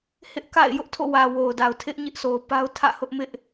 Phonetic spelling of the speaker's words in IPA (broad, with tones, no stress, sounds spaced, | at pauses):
h ɪ˦ ʔ k a̰˦˨ ɪ̯ j ʊ˦ ʔ tʰ o̰˦˨ w ä˨ w o˨ ʊ̯ d a˨ ʊ̯ tʰ ɪ˦ ʔ ɲ ɪ˦ ʔ sʰ o˨ ʊ̯ p a˦ ʊ̯ tʰ ä̰˦˨ h ʊ˦ ʔ m ɪ˦ ʔ